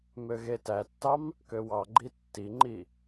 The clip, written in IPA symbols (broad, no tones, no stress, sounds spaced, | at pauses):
m ø ɣ e t æ tː ɑ m | k ø w ɑ ɡ͡ǃ i tː i ŋ͡ǃ i